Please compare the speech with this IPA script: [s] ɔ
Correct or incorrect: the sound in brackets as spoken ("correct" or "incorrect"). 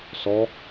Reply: correct